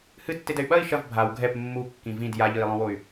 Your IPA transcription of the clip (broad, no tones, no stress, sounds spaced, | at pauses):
h ɨ tː e d ɛ y̯ ɓ ɐ i̯ ʃ ɐ v bʱ a w ɡʱ ɛ p mː u kː ĩ v ĩ d j a ʎ ɨ i̯ lˠ õ w o y̯